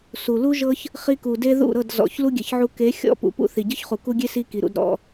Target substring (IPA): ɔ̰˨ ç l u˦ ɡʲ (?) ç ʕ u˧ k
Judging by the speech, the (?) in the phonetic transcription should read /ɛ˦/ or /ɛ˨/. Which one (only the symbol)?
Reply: ɛ˨